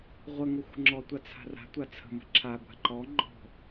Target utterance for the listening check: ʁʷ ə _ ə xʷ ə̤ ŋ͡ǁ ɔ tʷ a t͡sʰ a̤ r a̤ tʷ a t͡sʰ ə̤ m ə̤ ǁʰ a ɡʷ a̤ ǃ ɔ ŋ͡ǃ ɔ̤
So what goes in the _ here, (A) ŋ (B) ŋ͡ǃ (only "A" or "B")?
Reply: A